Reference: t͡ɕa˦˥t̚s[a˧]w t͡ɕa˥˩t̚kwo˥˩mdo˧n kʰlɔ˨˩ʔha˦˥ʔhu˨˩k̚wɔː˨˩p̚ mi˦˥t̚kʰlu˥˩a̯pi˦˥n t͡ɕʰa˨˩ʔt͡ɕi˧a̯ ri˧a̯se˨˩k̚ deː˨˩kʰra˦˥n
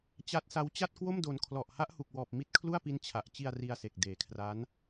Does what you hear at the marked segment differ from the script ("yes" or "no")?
yes